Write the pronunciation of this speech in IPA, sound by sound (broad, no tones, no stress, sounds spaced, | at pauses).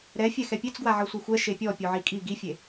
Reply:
ɾ ɛ fʲ ɛ x ɛ pʲ e t͡s ɡ w a ʕ ɤ sʷ e xʷ ɛ ʃ e pʲ ɔ pʲ o ʕ i kʼ i ɡ i fʲ e